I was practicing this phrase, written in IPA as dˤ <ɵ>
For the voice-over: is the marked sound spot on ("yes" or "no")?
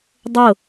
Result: no